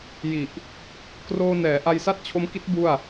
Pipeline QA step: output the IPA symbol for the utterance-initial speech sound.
j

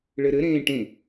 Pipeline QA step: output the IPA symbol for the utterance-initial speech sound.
ɭ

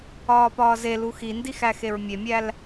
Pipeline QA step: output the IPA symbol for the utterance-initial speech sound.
ɒː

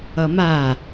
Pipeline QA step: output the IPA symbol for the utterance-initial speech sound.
ʌ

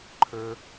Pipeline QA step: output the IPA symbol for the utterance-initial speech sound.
ǃʰ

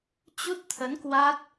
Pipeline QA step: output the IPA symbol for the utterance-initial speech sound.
t͡ɕ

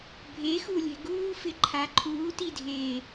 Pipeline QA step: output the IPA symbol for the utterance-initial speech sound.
bʱ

